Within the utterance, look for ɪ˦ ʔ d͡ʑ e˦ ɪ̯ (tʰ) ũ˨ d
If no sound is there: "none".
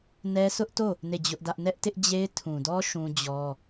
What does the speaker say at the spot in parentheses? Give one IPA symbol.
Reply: tʰ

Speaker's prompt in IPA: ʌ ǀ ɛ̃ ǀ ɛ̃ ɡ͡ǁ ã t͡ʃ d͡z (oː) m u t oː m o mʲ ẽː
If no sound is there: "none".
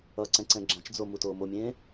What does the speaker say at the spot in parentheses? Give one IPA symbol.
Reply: o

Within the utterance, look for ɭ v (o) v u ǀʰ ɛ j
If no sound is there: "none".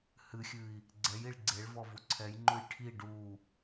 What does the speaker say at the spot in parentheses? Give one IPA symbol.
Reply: ɔ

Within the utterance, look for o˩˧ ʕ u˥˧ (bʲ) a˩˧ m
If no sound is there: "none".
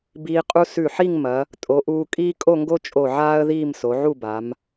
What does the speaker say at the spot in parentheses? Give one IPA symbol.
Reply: b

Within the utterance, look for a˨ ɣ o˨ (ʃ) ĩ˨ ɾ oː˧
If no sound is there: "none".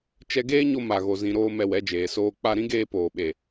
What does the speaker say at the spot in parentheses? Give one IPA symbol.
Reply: z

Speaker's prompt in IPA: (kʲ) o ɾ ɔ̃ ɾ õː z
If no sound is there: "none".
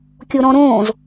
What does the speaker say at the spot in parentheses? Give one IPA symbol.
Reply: kʲ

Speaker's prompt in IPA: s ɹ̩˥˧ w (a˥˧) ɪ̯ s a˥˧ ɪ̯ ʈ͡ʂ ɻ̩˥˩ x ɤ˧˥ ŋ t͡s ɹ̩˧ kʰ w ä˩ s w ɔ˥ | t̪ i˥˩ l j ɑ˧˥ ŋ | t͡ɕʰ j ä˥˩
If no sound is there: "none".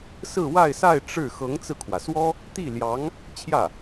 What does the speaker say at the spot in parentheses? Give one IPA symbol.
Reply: a˥˧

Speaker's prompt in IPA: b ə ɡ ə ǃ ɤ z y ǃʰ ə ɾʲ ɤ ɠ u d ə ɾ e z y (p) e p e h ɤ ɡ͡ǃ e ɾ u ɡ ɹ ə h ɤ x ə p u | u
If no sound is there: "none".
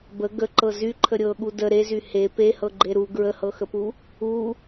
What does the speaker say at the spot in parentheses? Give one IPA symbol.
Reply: h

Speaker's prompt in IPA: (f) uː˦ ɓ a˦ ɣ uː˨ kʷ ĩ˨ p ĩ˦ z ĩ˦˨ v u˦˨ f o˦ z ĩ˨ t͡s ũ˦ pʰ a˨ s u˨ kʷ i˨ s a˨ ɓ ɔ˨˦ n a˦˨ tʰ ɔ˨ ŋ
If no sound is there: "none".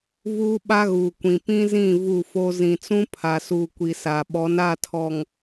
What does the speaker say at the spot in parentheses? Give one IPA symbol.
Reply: v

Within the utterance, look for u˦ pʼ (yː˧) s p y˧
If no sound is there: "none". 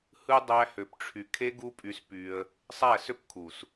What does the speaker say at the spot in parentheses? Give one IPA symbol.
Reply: y˧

